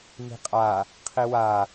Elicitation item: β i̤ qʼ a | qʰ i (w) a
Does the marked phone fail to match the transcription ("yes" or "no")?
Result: no